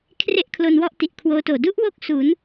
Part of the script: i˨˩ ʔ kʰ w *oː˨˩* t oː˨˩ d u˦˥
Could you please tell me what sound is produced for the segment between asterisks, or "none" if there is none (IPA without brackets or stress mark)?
oː˦˥